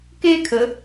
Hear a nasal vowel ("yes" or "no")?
no